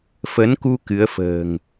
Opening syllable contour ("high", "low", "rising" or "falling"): rising